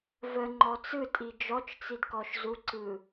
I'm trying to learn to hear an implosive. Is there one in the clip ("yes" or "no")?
no